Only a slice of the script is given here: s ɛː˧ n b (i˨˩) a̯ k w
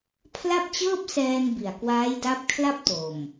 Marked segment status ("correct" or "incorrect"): correct